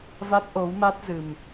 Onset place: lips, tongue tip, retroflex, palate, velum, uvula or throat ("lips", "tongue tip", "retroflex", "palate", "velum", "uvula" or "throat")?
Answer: lips